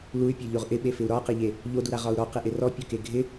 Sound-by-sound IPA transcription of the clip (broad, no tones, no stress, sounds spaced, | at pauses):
l u y̯ pʲ ɔ ʎ o ʁ ʔ ɪ ɓ e f ɪ u̯ ɾ ɒ q ɪ ʎ e | ʎ o d u ɾ a ʁ ɒ u̯ ɾ ɔ q ɪ ʔ ɪ r ɔ pʲ ɔ k e ɡʱ ɪ